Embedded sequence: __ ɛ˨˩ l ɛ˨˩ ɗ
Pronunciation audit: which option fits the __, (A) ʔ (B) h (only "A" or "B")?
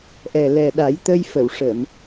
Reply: A